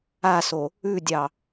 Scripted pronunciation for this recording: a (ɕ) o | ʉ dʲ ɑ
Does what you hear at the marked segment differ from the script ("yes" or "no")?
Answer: yes